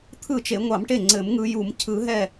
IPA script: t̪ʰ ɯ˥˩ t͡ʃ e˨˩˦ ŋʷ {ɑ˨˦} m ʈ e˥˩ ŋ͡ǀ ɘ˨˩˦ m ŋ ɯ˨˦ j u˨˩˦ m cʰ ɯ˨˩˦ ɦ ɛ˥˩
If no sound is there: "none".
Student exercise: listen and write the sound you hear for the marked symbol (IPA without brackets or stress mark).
ɑ˨˩˦